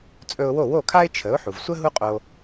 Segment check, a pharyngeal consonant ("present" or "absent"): present